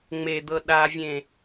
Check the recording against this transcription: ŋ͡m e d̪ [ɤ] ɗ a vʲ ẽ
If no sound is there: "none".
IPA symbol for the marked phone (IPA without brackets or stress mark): ɤ